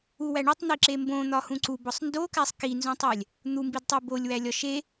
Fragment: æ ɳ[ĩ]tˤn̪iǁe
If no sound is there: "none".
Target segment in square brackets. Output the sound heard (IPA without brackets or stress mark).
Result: i